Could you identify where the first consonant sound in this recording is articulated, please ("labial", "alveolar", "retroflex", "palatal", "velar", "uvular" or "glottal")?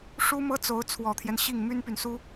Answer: retroflex